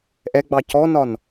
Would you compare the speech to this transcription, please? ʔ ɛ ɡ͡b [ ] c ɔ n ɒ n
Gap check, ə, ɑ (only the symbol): ɑ